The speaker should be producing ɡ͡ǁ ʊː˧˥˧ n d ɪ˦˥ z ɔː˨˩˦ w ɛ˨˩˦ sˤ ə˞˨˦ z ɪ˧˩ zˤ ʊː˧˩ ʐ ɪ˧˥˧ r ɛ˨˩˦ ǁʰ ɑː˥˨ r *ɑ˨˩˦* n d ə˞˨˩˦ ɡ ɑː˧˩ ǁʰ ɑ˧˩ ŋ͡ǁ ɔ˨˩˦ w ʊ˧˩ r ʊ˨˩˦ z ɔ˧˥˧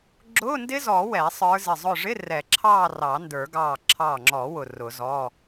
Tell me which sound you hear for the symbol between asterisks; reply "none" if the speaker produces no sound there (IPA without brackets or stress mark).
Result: ɑ˨˩˦